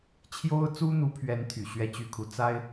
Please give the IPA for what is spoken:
t͡ɕʰ j o˥ ʊ̯ t͡s u˥ n̪ u˧˥ pʰ ɥ ɛ˧˥ n t̪ʰ y˨˩ ɕ ɥ ɛ˥˧ t͡ɕ y˥˩ kʰ u˧˥ t͡s a˥ ɪ̯

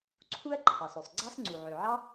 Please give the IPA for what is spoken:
ǀʰ u˥ ɐ̯ ǃʰ ɑ˩ s ø˩ sˤ ɡ͡ǀ ɑ˥ s ŋ͡ǀ u˩ ʕ ø˩ ʕ ɑ˥

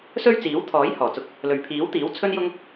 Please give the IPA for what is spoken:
s ɵ˥ ɥ t͡s iː˨˥ w t̪ʰ ɔː˨˥ j h ɔː˨˩ t͡s ʊ˧ k̚ | l ɵ˨ ɥ pʰ iː˨˥ w t̪ iː˨˥ w t͡sʰ ɵ˥ n j ʊ˥ ŋ

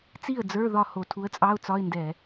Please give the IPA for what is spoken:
t͡s i˥˩ ə̯ d͡z ə˞˧˥˧ ð ɒ˥˩ h o˧˩˧ tʰ u˨˥ ə̯ t͡sʼ ɑ˧˥˧ ʊ̯ t͡s ɒ˧˥˧ ɪ̯ n d ɛ˧˩˧

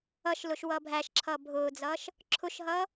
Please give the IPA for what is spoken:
ʌ ʃ l ʊ ʃ w ʌː bʱ æ ʃ ǁʰ ʌː bʱ ʊː d͡z ʌː ʃ | ǁʰ ʊ ʃ ɦ ʌː

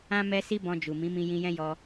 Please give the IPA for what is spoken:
ã˦ m ɛ˦ s i˦ b ɔ̃˧ d͡ʒ u˨ m ĩ˨˦ m ĩ˧ j ĩ˧ j ɛ̃˦ j ɔ˧

